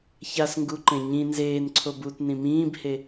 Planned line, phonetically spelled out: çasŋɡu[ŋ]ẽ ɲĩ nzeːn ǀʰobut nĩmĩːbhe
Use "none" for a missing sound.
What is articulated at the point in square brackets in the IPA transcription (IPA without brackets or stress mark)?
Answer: ǃ